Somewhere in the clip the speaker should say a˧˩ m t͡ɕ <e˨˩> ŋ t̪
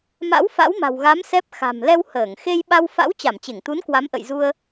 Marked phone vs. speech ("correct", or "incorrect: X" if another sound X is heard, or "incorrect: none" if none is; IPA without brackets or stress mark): incorrect: e˧˩